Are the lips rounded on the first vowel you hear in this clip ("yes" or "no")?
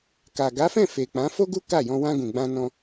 no